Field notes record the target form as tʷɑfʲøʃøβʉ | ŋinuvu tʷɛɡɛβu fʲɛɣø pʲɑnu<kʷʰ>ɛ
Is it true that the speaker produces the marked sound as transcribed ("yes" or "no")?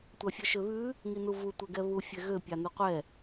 no